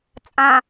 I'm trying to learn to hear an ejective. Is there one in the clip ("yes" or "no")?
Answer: yes